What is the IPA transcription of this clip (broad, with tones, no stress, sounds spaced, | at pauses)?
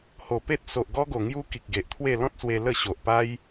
h o˨˩ p e˦ t̚ s o˨ ʔ ɡ ɔ˦ ɡ o˨˩ ŋ j u˦ k i˨ k̚ ɡ e˨ ʔ t̪ʰ w e˥˧ l ɔ̃˦ t̚ s w e˧ l ə˥˧ ɕ o˨ ʔ p a˦ j